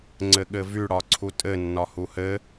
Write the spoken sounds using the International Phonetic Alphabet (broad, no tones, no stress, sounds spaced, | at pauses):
ŋ͡ǀ ɘ ɠ ɘ v y ɽ ɒ ǀʰ u tʼ ɘ nː ɒ h u h ɘ